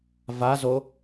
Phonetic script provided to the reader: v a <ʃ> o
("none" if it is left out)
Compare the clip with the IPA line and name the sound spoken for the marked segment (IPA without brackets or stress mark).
z